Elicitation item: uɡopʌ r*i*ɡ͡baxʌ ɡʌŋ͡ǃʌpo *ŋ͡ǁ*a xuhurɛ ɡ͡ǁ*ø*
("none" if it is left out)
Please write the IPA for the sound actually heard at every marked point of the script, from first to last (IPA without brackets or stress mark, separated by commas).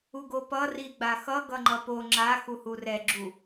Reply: i, ŋ͡ǁ, u